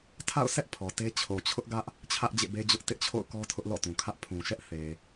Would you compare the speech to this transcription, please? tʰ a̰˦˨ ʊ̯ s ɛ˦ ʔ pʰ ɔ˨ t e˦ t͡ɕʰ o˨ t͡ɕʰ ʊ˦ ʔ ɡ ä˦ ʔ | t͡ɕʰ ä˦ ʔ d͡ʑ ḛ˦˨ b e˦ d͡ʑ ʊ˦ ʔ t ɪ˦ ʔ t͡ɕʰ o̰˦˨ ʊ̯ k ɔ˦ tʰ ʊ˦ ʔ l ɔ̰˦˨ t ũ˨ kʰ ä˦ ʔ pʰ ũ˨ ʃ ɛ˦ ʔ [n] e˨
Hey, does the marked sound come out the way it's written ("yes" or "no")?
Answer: no